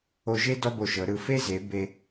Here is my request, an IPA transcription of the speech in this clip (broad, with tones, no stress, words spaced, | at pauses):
o˧ʒe˥ dɔ˥bo˧˩ʃɤ˩˧ɾɯ˧˩ fe˥ze˩˧ be˧